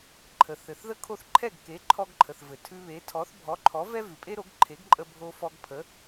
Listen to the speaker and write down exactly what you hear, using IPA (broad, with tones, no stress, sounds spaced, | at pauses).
ǃʰ ə˩ θ ɘ˩ θ ð ə˥ kʰ o˥˩ θ ǃʰ ɛ˥˩ ɡ k e˩˥ ǃʰ ɔ˧ ɡ ǃʰ ə˩ θ v ɘ˩ tʰ ʉ˧ β e˩˥ tʰ ɔ˩˥ θ bʱ ɔ˩˥ ǃʰ ɔ˩˥ v ɛ˥ v ʉ˩ pʼ e˥ ɾ o˩˥ ɡ ǃʰ e˩˥ ɡ ǃʼ ə˧ bʱ o˧ f ɔ˧ ɡ pʰ ə˩˥